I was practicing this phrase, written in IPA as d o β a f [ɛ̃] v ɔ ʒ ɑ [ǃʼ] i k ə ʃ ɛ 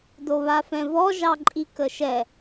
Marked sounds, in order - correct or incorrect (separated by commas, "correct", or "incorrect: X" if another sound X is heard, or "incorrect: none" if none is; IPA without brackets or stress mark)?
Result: correct, correct